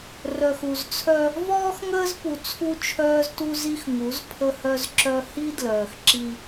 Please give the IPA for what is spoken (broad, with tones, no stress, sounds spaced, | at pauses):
r œ˨ x u˨ z t͡sʰ œ˦ | v ɔː˦ x ŋ əː˦ z p u˨ t͡sʰ u˦ t͡ʃʰ œː˦ z t u˦ z i˦ x ŋ u˨˦ z pʰ ə˦ h œ˦ z ǁ œ˦ h i˦ d l œː˨ x ǁ i˦